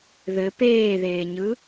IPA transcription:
ðɘ peːðeːɲɯ

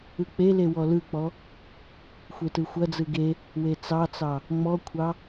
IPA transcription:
ɯk͡pele wɔlɯk͡pɔ | xʷetɯxʷɐd͡zɯ ɡe | wet͡sɑt͡sɑ | ŋ͡mɔkʷʰɑ

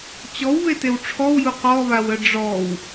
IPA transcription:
t͡ɕɔwβetew ʈ͡ʂʰɔwju qɔβawə ɖ͡ʐɔw

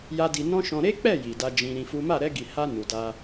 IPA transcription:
ja˦di˧ nɔ̃˦ ʃɔ̃˧ ɾe˦k͡pɛ˦˨ ji˨da˧d͡ʒĩ˧ ɾĩ˧ fu˦ ma˦˨ɾɛ˧ɡi˨ha˧ nu˨da˧

